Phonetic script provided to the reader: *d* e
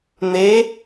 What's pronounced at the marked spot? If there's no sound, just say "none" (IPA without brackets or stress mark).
n̪